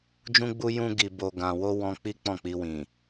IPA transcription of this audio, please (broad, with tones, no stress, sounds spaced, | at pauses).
d͡ʒ ũ˦ ɡ͡b u˦ j ũ˦ ɡ i˧ b o˧ ɡ ã˧ w o˦ w ɔ̃˦ k͡p i˦ k͡p ɔ̃˦˨ k͡p i˧ w ĩ˨